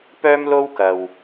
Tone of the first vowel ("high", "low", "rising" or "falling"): high